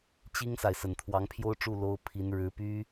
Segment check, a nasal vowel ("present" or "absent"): absent